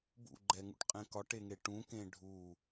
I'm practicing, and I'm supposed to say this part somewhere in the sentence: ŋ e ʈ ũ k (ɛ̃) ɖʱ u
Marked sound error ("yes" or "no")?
yes